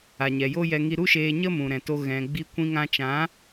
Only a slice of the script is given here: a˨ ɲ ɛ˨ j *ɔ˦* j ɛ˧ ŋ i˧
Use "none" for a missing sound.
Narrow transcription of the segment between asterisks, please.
o˦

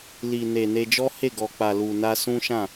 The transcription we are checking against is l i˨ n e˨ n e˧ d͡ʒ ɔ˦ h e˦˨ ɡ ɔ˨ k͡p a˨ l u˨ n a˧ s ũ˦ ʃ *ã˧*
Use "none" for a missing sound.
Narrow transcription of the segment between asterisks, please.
ã˦˨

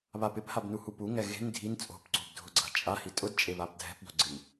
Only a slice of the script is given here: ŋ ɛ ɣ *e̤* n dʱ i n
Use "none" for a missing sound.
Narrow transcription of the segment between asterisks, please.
e̤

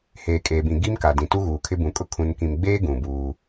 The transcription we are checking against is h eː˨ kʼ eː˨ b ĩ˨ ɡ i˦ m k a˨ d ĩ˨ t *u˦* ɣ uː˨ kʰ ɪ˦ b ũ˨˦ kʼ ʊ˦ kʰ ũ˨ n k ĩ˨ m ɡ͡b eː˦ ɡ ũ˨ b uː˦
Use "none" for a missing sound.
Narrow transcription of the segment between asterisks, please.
u˦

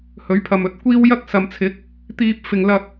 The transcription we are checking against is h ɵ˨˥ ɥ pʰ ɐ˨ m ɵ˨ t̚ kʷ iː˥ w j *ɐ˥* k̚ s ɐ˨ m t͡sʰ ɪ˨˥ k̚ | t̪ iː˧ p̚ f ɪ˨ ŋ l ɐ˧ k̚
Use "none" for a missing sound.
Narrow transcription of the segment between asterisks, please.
ɐ˥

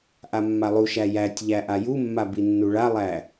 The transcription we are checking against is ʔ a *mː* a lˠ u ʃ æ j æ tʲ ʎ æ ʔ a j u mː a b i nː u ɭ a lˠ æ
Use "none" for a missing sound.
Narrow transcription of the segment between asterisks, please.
mː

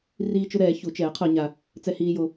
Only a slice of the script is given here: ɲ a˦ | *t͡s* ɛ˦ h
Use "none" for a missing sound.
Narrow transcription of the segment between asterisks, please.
t͡s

